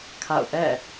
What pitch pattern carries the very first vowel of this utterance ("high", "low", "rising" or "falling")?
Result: falling